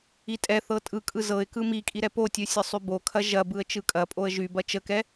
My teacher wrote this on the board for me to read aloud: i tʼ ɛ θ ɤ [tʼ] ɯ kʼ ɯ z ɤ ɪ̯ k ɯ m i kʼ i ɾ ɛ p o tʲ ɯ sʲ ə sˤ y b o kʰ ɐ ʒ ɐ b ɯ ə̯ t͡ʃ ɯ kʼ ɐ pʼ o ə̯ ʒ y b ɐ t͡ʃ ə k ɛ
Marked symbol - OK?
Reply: yes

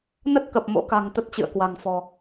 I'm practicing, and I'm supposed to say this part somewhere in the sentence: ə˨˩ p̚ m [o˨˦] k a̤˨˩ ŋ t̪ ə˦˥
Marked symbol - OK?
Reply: no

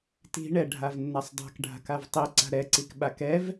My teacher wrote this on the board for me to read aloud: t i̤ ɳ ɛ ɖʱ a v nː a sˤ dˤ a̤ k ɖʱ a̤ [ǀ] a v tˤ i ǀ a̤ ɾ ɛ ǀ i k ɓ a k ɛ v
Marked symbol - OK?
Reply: no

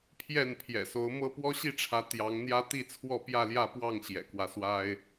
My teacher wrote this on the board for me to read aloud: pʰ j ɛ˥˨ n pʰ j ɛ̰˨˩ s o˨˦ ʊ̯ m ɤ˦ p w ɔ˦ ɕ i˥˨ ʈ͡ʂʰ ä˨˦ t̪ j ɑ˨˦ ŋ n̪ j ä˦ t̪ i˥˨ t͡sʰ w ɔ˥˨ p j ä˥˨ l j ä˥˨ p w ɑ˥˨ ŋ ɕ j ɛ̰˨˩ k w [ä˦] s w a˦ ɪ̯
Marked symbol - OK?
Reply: yes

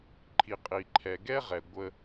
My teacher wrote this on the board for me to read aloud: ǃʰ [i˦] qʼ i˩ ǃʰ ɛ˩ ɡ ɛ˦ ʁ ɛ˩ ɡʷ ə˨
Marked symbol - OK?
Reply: no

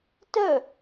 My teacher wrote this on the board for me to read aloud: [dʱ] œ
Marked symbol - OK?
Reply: no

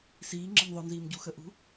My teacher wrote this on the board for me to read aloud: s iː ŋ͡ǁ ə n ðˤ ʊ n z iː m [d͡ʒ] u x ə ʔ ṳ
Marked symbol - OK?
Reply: no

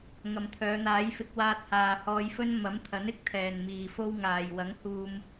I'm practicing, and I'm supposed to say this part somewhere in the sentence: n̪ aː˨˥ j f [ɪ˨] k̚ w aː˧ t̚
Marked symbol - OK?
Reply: no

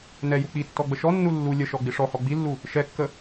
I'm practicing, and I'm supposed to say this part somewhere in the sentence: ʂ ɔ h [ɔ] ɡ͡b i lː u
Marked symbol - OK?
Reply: yes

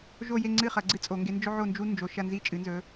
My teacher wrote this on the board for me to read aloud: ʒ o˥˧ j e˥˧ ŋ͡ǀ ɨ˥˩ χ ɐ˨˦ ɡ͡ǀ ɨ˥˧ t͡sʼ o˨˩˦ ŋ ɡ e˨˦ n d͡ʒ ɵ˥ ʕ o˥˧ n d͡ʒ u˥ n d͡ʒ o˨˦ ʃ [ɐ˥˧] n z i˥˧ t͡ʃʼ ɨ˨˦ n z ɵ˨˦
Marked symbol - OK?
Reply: yes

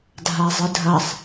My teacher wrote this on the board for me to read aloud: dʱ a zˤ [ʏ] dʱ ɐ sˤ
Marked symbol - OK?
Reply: no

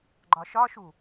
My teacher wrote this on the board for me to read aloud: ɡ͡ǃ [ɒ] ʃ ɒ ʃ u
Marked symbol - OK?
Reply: yes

